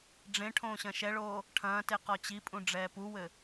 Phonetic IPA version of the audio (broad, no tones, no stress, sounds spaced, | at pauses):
ɖ͡ʐ ẽ ʈʰ õː ɕ ɐ̃ ʃ ɛ ɭ oː | ʈʰ ɐ̃ː t e q ɔ t͡ɕ i pʼ ũ ɖ͡ʐ ɛː p u w ɘ